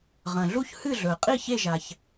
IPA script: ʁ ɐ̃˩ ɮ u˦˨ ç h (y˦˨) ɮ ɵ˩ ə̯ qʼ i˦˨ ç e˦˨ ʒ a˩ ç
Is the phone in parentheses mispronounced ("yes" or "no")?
yes